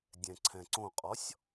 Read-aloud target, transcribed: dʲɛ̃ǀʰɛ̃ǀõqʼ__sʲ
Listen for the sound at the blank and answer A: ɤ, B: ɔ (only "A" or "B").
B